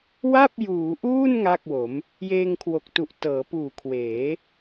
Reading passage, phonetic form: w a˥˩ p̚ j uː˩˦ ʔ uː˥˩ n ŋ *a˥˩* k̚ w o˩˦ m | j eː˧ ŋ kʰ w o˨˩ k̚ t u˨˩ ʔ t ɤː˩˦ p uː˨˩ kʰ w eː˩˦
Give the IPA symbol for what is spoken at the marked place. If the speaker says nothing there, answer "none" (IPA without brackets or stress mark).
a˥˩